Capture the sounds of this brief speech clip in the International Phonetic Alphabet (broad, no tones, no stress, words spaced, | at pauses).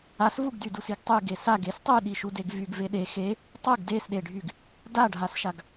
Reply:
as vuɡdy dusiɡtˤy ɡesaɡ estˤyɗi ʃudeɡvyɡve ɗe xe | tˤuɡ desɗeɖʱyɡ | daɖʱasʃaɡ